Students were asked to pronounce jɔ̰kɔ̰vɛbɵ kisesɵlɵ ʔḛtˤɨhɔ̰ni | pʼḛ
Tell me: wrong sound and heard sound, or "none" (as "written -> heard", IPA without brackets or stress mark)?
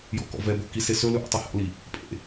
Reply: n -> l